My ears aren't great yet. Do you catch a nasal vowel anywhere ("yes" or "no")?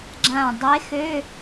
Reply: yes